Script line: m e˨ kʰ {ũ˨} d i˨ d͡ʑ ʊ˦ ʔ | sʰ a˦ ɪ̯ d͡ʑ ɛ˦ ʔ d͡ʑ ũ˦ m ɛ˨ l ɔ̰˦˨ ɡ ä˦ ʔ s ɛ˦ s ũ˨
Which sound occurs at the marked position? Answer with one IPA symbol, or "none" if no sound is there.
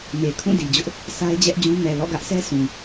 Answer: ũ˦˨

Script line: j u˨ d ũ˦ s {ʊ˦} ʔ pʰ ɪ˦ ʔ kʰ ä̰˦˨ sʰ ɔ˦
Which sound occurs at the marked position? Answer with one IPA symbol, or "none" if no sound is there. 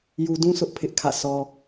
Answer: ʊ˦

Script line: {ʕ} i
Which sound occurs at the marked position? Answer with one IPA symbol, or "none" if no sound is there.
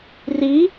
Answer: r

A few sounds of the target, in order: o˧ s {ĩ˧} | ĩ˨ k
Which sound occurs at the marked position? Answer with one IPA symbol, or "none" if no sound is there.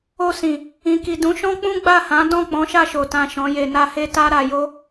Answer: ĩ˨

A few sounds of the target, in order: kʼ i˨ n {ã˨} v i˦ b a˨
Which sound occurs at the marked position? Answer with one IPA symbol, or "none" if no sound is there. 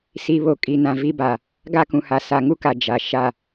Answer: ã˨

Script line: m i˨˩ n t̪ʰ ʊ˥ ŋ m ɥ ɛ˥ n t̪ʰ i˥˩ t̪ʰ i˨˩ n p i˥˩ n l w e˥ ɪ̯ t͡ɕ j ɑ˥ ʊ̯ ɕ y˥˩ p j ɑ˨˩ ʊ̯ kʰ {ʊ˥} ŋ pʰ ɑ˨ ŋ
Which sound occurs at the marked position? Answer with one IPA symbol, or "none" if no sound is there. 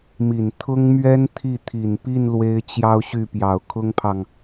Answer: ʊ˥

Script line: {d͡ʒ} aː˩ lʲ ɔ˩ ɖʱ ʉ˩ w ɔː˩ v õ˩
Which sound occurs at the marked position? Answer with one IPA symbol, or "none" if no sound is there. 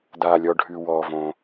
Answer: d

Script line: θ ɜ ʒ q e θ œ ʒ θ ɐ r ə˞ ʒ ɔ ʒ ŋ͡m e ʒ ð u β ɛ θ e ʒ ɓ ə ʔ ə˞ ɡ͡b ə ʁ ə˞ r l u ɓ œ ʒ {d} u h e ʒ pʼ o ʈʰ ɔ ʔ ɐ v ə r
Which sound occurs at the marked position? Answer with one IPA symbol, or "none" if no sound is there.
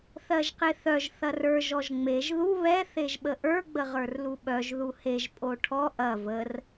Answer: ð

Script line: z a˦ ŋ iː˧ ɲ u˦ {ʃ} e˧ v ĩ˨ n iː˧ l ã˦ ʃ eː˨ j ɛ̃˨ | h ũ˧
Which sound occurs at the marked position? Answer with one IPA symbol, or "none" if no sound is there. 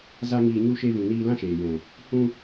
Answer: ʃ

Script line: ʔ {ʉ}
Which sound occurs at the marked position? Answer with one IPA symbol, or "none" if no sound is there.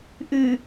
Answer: ʉ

